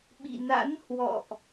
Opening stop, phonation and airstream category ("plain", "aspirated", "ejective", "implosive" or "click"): implosive